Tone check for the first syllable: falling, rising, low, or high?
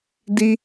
high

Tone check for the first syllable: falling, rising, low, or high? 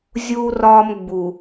high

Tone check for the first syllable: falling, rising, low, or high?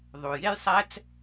low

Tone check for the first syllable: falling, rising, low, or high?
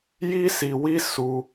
high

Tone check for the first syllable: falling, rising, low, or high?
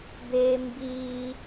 high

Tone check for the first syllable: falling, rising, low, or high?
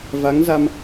rising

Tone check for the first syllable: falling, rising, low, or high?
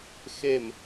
falling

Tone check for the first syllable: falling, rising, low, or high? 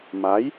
rising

